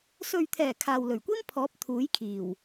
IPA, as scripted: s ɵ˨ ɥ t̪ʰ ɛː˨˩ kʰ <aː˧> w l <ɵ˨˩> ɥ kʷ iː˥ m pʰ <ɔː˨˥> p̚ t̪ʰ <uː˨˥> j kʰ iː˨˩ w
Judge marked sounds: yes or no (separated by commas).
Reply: no, yes, yes, yes